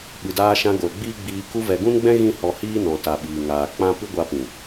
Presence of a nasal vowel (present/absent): present